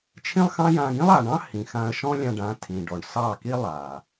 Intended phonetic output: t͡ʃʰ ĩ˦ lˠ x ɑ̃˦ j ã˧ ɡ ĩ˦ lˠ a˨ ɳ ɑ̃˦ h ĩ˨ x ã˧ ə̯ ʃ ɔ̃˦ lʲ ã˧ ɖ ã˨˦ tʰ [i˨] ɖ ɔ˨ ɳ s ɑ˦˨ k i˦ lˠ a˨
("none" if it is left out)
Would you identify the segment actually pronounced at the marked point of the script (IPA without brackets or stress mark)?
ĩ˨